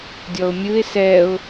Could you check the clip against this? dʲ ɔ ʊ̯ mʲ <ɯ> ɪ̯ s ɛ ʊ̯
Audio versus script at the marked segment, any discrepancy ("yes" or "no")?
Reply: no